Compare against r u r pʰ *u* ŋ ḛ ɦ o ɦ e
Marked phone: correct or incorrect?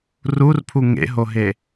correct